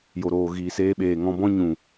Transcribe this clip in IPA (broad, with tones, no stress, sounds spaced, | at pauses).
j o˨ ɾ oː˨ ɣ iː˨ s eː˧ ɓ eː˨ ŋ ɔ̃˧ b ɔ̃˦ ɲ ũ˨